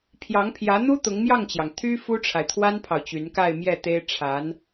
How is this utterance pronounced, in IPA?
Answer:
pʰjɑ˧˥ŋpʰjä˧˥n̪u˥ t̪ʊ˧˥ŋmjɑ˥˩ŋt͡ɕjɑ˩ŋ t̪ʰy˥ fu˥ʈ͡ʂʰa˨ɪ̯t̪ʰwa˥npʰɑ˨ʊ̯ t͡ɕy˧˥nka˥˧ɪ̯mjɛ˥˩t̪e˥ɪ̯ ʈ͡ʂʰa˧˥n

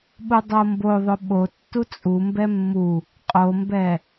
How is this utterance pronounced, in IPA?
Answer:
ɓudˤomboðˤɵ ɓo tːut͡sʼumbɛ mːu | qʼombɛ

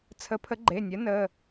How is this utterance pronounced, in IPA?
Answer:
t͡sʰə˨˥pʰə˨˥ɡ͡ǃe˩˧˩nʲɜ˨˥ nə˩˧˩

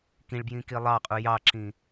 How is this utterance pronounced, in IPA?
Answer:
kĩɭbjĩ kilˠɑqʼu jɑǁĩ

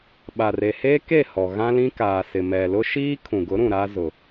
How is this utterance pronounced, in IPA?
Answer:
ɓa˨re˨heː˦ke˦˨ hɔ˨ɣã˦lĩ˦kaː˨ sɪ˨mɛ˨lʊ˦ ʃiː˦kʰũ˨ɡʊ˨˦ɾũ˨ ɾa˦zʊ˨

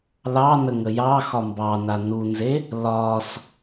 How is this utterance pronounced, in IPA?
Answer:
lɑnə ŋəjɑxɒ mbɑna nunze | lɒs

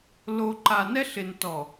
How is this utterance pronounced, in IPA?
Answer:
lo˨ǃa˨nɛ˦ɬ ɪ˨ntɔ˨

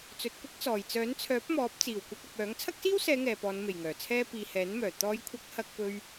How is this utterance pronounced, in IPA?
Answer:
t͡sɵ˨t̚kʷɪ˥k̚t͡sɔː˨˩j t͡sœː˨˥nt͡sʰœː˨˥p̚mɔː˨˥p̚ t͡siː˨˩wkʷɐ˧k̚ɐ˨p̚ œː˨˥ŋ t͡sʰɐ˥k̚siː˥wsɛː˨˧ ŋɛː˨pɔː˨˧nme˨˩j ŋœː˨˩t͡sʰɛː˥ piː˨hɛː˨˥nmœː˨˩ t̪ɔː˨˧jkʷʰɐ˨˥k̚ hɐ˧k̚ pɵ˧ɥ

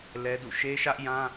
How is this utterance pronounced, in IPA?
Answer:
lɛ˦dṵ˦˨ ʃe˦ʃä˦ʔjã˦

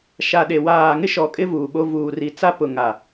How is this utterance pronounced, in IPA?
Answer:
ʃa˨ɗe˨ waː˨ŋɪ˦ ʃɔ˨kʼɪ˦ vuː˨ɓo˦ vuː˨ri˨t͡sa˦pʊ˨ ŋa˨

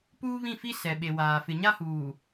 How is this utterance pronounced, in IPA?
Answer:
puː˦βĩ˦˨fi˦ sɛ˨ɓe˨waː˨ fɪ˨ɲa˦ huː˨

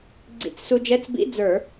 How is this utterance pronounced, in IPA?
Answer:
ɡ͡ǀḭ˧˩˧t͡ssu˧d͡ʒɛ˧˥˧t͡s bḭ˧˥˧d͡zə˞˧˩˧

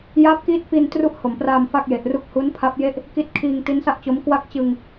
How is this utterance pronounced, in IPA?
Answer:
jaː˦˥p̚kiː˦˥t̚fi˧n tru˥˩ʔho˩˦mpraː˧m fa˥˩k̚je˨˩ʔru˥˩k̚ hu˦˥npʰa˦˥p̚je˥˩ʔ | ki˦˥t̚kʰiː˧ŋ ti˦˥nsa˥˩ʔt͡ɕo˦˥m kwa˥˩k̚ t͡ɕɯ˧ŋ

